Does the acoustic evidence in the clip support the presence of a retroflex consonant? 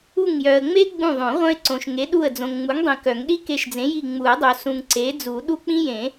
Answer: no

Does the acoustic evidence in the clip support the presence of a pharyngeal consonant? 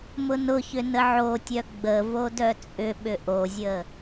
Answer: yes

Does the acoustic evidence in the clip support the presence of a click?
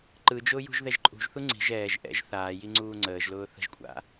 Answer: yes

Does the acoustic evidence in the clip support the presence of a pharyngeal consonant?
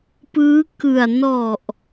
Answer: no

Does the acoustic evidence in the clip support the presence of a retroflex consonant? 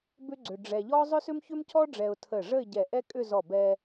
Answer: yes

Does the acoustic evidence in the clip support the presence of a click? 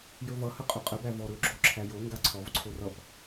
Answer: yes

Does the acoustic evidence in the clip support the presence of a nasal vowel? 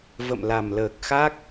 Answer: no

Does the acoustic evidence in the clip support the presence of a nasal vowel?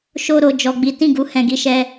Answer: yes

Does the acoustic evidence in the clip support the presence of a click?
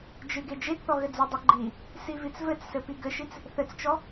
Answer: yes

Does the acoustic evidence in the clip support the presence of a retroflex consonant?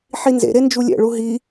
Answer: yes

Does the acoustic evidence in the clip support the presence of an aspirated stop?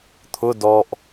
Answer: yes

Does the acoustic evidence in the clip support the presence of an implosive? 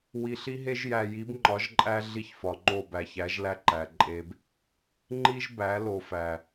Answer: no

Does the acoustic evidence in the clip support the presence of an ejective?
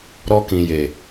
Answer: no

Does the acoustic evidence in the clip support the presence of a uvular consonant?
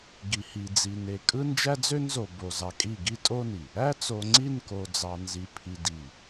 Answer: no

